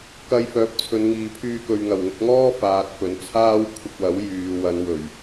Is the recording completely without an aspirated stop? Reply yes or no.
no